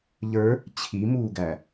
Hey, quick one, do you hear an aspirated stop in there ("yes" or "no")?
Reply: yes